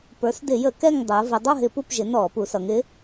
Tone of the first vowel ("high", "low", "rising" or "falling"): rising